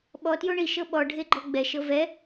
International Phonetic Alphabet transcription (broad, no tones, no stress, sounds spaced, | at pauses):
ɓ ɔ t j o ɳ i ʃ ɤ ɓ ɔ ɖʱ e ɡ͡ǃ ɔ ɡ͡b ɛ ʃ ɤ v ɛ